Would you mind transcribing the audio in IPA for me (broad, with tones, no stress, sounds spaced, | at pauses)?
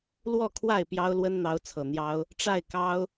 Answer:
l w ɔ˥˨ kʰ w a˥˨ ɪ̯ p j ɑ˦ ʊ̯ l w ə˦ n n̪ ɑ˨˦ ʊ̯ t͡sʰ ɤ˨˩ n̪ j ɑ˦ ʊ̯ | ʈ͡ʂ a˥˨ ɪ̯ k ɑ˦ ʊ̯